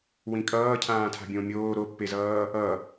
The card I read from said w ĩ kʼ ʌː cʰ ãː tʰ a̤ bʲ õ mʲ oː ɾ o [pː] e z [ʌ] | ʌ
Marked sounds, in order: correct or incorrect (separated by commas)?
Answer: correct, incorrect